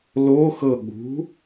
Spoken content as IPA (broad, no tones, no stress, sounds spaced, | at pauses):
l o x ɤ ɠ ṳ